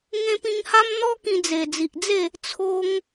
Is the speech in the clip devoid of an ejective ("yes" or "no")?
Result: yes